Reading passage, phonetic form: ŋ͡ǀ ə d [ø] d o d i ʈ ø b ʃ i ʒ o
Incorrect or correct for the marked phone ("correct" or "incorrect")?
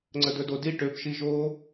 incorrect